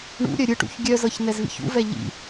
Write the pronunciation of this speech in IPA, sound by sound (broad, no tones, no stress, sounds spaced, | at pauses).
ɳ ṵ ɾʲ œ ɾʲ ɯ ʈ ṵ ç ɡʲ œ z ɤ ç n ɛ z v ḭ ç ṵ v ɛ ʎ ḭ